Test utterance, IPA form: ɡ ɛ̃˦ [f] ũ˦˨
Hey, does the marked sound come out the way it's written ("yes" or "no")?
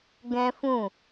yes